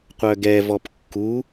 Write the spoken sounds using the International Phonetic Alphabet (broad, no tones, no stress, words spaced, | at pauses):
qʷœɡɛvɔp kːu